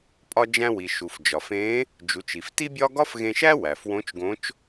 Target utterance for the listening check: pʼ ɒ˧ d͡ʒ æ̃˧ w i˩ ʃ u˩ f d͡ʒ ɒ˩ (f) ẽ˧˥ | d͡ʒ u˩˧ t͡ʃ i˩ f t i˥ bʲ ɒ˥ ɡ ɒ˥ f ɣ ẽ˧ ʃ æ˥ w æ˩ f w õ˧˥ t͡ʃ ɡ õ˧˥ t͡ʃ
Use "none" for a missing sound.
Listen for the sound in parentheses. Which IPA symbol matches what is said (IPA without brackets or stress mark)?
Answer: f